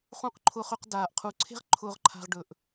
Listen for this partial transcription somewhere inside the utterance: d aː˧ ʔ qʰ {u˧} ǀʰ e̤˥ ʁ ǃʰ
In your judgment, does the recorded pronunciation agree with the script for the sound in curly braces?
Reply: yes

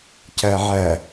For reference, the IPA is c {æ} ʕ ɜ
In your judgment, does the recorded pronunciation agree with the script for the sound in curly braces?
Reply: no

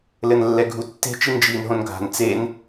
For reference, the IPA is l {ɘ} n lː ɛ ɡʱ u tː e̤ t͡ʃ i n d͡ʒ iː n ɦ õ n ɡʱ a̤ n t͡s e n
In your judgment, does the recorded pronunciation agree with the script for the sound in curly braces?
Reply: yes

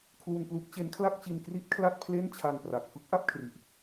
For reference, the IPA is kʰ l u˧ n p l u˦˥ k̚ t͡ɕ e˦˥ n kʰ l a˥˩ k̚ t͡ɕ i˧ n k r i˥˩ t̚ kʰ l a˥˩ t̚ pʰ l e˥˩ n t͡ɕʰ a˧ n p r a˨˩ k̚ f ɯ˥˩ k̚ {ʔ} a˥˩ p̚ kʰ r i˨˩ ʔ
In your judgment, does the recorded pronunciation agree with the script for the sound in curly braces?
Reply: yes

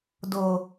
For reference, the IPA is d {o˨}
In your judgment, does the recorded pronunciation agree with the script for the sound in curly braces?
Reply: no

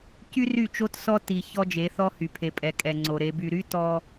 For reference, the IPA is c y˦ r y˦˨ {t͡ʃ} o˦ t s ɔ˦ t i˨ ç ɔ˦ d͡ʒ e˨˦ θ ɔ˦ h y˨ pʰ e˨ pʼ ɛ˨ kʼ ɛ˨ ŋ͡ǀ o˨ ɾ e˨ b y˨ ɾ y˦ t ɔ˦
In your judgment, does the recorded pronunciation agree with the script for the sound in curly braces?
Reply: yes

